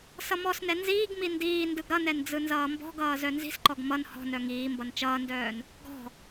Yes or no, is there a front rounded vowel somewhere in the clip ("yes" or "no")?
yes